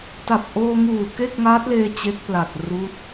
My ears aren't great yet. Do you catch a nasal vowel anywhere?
no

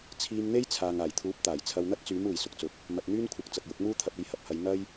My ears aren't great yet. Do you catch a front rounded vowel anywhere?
yes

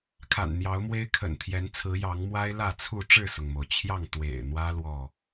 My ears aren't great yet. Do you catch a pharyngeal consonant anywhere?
no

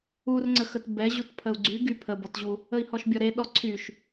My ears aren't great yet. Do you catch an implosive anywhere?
yes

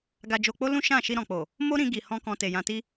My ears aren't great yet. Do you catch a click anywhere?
no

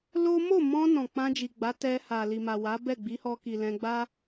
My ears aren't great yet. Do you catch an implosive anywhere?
no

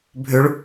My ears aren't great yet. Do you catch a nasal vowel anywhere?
no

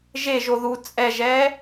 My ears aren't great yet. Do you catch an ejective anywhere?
yes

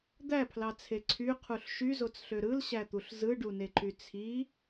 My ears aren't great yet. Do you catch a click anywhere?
yes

